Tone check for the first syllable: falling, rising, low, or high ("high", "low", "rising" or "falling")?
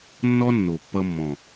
high